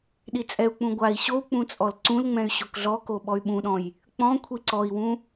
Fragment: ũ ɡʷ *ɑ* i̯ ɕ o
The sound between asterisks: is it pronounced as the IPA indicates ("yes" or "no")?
no